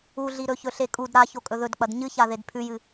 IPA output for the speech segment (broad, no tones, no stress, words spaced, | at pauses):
uɮiɾɵçɵ ɬekʼud ɾa çokʼɵðɵd k͡pɐdɲɨça ðedpʰʉjɨ